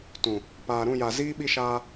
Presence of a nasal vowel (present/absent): present